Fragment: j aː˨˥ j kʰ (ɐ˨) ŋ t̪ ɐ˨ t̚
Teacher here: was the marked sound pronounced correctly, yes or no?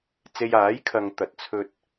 yes